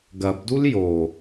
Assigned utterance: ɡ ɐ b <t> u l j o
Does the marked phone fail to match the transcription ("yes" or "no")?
yes